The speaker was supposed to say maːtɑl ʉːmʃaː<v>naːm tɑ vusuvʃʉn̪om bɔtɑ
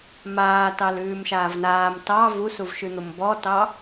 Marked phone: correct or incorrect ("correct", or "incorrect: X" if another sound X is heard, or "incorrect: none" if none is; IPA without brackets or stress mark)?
correct